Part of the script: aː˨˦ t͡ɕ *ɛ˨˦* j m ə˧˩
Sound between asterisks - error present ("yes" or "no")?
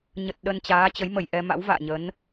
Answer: yes